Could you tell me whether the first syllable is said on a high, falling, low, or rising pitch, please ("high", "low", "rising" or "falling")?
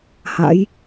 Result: rising